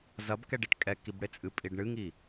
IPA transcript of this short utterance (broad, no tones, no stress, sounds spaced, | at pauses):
z ɐ b k ɛ ɖ e ʈ kʼ ɛ k i b ɽ e t͡sʼ ɨ pʼ i ɖ ɳ ɨ ŋ i